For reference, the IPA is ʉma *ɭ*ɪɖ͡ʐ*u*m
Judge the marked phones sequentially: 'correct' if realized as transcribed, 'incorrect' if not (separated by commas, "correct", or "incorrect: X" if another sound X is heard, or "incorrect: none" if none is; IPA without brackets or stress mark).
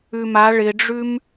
correct, incorrect: ʉ